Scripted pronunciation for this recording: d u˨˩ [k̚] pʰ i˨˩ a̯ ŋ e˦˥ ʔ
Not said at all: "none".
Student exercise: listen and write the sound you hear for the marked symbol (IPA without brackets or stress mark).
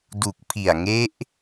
k̚